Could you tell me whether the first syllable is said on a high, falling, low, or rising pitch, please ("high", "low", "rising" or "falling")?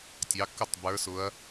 rising